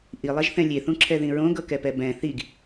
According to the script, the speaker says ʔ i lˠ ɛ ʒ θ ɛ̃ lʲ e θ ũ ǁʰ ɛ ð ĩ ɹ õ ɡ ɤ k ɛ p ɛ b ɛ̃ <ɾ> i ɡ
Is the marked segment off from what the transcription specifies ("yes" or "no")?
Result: yes